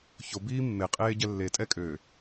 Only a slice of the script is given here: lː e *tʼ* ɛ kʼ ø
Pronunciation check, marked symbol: correct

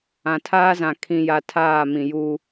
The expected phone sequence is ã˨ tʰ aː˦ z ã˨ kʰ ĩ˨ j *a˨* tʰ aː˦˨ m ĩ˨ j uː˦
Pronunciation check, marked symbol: correct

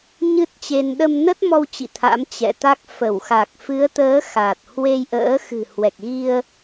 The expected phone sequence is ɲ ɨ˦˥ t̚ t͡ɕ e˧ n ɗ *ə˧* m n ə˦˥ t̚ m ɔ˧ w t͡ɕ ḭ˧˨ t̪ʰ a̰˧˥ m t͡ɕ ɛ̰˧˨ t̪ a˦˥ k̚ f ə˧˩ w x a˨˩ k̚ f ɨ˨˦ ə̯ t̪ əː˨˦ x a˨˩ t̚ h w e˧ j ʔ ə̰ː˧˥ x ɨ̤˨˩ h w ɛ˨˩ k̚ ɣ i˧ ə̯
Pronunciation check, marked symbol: correct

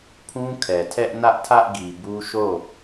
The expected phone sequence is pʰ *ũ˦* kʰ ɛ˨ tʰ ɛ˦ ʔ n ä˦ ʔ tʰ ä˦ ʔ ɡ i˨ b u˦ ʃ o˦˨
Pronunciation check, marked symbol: correct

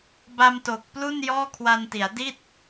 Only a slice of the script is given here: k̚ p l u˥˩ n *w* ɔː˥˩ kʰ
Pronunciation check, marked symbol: incorrect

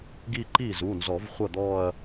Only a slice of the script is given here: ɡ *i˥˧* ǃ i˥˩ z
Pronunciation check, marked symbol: correct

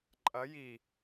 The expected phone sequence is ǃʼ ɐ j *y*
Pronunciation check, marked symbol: incorrect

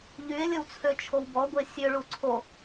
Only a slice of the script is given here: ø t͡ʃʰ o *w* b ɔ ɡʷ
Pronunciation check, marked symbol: correct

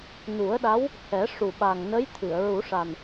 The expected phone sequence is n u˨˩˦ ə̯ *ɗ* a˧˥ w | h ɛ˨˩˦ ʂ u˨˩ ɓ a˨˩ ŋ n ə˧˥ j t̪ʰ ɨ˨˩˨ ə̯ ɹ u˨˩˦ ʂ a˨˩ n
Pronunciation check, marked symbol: correct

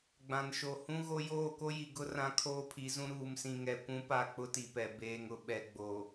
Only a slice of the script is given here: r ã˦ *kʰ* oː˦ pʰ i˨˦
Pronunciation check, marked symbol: correct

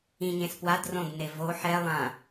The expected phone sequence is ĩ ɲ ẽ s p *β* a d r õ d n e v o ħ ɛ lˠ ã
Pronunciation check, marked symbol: incorrect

